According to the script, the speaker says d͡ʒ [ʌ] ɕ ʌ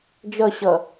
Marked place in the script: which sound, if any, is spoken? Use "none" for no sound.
ʌ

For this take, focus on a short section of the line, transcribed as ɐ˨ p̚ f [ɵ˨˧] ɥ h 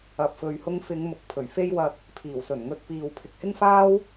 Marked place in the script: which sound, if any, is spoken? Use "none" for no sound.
ɵ˨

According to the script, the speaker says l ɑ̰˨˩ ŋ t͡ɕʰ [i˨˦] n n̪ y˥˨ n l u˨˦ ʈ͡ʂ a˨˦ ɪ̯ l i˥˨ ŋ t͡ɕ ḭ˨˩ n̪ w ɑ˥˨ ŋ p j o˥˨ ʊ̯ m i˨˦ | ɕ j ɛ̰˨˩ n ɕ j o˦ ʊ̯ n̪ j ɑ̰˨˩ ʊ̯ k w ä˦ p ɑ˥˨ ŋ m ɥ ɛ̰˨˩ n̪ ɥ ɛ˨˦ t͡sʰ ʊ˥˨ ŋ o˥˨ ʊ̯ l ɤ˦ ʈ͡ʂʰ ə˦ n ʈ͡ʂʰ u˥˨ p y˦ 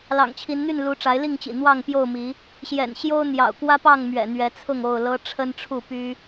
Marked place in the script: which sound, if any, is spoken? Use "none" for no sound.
i˨˦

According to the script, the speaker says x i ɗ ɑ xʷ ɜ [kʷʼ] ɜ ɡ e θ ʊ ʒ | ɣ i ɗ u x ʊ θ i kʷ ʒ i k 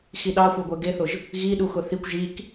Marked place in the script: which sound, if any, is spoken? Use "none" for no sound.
ɡʷ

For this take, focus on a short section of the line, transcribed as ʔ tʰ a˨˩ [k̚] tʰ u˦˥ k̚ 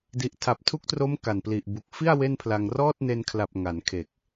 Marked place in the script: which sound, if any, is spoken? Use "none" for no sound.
p̚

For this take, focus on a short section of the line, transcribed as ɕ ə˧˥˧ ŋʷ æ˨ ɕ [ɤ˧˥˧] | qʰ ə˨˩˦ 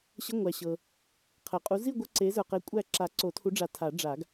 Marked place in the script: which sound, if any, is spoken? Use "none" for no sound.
ɤ˨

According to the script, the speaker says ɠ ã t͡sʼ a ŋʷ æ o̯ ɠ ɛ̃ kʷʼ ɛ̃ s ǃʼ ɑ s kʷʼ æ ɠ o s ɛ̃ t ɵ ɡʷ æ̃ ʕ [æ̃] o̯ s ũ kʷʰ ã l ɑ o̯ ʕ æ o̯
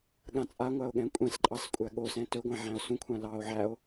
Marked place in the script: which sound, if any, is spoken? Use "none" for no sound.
æ̃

